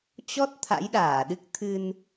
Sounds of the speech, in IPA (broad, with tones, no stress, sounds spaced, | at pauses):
t͡ɕ ɔ˦˥ t̚ t̪ʰ a̰˧˥ j ɗ aː˧˩ ɗ ɨ˦˥ k̚ t̪ʰ ɨ˧ n